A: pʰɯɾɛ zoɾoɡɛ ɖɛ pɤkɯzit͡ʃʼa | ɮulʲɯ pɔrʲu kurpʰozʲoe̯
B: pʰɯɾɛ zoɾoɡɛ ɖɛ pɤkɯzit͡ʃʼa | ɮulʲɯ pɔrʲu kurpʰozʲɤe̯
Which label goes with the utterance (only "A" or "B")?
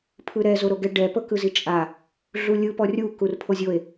A